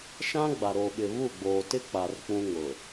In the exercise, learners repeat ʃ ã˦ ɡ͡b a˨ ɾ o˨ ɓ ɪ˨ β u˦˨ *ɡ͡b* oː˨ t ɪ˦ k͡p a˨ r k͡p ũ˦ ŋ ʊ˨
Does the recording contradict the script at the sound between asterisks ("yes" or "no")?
no